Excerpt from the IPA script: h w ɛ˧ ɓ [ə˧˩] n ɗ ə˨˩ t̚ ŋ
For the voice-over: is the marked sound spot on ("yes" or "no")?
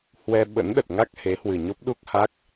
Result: no